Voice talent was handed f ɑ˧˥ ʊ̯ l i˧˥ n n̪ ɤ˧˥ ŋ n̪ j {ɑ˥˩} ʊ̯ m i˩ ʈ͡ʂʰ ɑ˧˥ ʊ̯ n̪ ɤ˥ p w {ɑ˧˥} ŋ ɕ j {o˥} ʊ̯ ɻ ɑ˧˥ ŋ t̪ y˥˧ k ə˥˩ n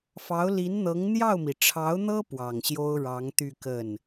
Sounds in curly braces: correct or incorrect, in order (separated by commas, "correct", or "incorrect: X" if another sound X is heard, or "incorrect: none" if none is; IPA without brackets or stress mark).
correct, incorrect: ɑ˨˩, correct